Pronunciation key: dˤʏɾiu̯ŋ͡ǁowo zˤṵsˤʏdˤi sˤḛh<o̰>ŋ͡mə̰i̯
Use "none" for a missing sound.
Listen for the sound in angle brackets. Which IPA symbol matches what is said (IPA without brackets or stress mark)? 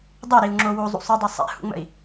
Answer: ṵ